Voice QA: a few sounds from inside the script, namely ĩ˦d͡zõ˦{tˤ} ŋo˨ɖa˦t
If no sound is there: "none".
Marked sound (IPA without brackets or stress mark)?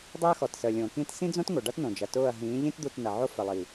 t